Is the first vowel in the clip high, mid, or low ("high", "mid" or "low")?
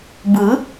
high